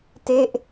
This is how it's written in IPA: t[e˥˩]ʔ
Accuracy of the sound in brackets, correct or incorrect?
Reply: correct